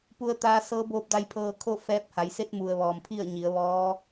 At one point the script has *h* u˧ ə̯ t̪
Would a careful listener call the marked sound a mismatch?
yes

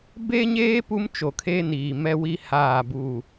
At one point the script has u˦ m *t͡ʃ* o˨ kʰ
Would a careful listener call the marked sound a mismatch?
no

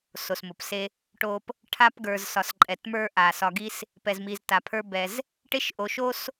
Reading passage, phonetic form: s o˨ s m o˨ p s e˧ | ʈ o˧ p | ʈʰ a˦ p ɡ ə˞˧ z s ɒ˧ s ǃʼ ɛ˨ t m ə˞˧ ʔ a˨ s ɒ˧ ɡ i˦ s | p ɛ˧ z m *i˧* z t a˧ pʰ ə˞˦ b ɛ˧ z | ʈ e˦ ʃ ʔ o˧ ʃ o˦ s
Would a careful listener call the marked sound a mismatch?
no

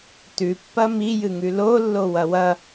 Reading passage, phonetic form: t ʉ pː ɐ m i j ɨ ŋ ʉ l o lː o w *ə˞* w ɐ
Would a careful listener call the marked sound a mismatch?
yes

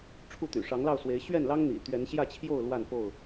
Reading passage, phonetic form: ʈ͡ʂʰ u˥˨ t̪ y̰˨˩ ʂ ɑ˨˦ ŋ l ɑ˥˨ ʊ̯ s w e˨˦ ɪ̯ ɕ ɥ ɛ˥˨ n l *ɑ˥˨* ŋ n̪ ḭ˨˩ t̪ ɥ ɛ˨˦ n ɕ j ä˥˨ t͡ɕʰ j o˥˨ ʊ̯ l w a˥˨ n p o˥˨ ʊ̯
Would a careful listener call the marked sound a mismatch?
yes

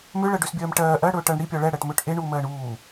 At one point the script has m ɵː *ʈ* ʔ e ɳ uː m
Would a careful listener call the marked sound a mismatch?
no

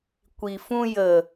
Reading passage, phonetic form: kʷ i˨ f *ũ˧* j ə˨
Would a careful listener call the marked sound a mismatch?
no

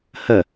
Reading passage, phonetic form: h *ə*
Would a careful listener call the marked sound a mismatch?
no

